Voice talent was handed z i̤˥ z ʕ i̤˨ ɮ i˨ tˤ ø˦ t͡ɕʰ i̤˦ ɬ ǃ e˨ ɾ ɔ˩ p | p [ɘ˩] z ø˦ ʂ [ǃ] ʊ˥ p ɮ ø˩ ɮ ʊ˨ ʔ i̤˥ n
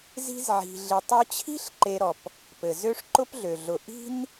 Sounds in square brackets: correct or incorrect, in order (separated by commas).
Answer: correct, correct